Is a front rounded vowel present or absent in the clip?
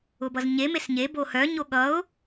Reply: present